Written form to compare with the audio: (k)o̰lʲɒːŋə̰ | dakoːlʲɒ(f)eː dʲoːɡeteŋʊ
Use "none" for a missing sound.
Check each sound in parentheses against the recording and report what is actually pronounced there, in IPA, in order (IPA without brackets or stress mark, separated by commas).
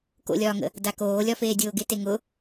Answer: k, f